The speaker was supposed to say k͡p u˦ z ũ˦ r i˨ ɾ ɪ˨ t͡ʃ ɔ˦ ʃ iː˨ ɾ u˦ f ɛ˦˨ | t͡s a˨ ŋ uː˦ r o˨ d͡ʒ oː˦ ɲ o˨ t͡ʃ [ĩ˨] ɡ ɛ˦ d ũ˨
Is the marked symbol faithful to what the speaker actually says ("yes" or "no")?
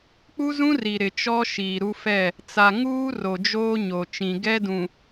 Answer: yes